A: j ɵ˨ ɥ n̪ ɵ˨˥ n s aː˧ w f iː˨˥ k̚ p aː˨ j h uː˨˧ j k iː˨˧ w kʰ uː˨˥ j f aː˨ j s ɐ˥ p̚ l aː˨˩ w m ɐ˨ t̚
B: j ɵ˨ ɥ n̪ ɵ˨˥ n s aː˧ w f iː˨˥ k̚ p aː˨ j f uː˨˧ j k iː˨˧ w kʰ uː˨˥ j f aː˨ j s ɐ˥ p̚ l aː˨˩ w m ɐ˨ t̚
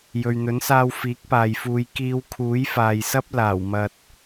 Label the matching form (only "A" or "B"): B